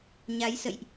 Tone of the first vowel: rising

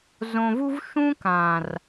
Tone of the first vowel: low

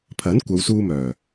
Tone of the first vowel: rising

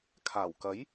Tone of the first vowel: low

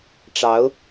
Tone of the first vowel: rising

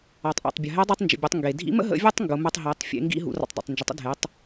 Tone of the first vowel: low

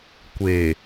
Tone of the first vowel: low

